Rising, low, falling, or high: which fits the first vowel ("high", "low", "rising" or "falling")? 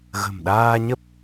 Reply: low